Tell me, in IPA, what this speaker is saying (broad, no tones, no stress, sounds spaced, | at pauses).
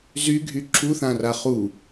z y ɡʱ y ǁʰ u θ ã r a χ u